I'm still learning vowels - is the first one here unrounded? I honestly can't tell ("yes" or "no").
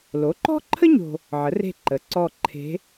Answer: no